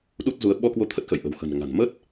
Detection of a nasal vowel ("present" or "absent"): absent